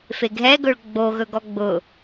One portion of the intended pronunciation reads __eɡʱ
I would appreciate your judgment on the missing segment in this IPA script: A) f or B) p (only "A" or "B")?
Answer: A